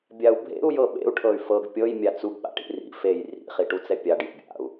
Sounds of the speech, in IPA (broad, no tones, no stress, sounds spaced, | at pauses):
bʲ a u̯ bʱ ḛ u̯ j ɤ ɓ ḛ u̯ ʈʰ ɤ y̯ f ɤ ɡ pʲ ɤ j mʲ a t͡s u ɡ ɓ a̰ ʈ ḭ r ḭ f e j r ḭ χ i ʈ u t͡s ɛ pʲ a ɖ j ḛ bʲ a̰ u̯